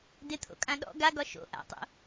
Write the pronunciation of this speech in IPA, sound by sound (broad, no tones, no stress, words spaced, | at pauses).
dɪt̪ʰo̰kʼã ɗɔ̰ ɡaɡɒ ʃo̰ ʔa̰tˤo̰